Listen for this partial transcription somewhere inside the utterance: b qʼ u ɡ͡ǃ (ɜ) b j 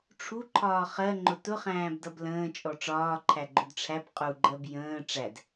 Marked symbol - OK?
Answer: yes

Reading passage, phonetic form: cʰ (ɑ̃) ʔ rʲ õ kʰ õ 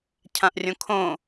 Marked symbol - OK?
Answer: no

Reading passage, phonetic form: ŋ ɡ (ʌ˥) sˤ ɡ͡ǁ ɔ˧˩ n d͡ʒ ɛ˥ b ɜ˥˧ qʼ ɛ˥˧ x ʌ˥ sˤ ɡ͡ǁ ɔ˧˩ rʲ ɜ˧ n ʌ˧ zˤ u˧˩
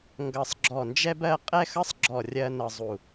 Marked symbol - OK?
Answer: no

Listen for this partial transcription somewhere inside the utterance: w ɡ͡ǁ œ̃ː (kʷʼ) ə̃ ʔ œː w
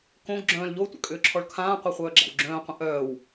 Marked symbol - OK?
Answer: no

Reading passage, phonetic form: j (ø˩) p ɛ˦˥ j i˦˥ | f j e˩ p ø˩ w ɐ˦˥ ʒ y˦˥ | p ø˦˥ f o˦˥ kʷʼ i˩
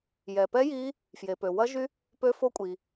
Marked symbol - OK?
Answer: no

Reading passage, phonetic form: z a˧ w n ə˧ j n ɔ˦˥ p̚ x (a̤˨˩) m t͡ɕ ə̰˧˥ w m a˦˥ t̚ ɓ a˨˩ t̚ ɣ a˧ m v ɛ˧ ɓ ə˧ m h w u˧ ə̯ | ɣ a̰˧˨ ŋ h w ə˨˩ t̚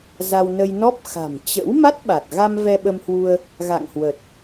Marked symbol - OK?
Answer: yes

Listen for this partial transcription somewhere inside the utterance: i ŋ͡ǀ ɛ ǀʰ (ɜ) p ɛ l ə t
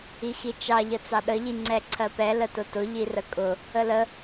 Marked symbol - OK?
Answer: yes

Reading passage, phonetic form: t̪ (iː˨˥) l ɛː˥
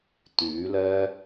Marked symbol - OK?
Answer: no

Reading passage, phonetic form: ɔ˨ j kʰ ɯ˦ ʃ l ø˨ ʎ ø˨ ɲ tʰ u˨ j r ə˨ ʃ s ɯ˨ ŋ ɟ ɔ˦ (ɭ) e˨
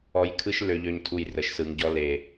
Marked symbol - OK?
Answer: no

